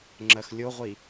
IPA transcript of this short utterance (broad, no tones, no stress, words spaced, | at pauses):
ŋ͡ǁɜxlʲoʁʷi